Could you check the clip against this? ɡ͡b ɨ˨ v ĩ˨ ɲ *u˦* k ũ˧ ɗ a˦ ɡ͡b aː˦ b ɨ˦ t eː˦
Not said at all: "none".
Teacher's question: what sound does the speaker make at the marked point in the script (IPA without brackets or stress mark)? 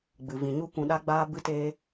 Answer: u˦